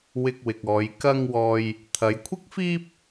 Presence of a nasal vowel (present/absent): absent